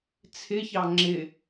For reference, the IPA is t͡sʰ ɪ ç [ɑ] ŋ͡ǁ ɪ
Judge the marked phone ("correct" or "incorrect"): correct